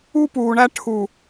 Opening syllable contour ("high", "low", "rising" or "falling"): high